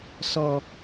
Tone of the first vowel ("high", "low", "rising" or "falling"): low